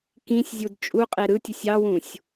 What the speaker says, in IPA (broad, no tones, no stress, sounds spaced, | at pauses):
k ĩ sʲ zʲ u d t͡ʃʼ u qʼ e ɾ ɯ tʲ ʊ sʲ ɑ w ũ sʲ